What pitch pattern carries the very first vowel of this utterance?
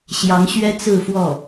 rising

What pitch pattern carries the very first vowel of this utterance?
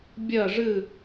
falling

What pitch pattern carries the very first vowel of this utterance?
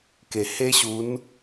low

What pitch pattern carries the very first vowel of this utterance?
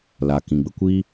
low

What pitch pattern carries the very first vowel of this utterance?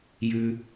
low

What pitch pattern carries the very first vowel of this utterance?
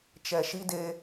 low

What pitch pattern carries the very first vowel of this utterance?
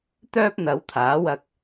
high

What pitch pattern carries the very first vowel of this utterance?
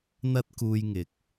high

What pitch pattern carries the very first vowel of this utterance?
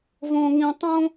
high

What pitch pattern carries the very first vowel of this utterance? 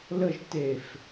falling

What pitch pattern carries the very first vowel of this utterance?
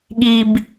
high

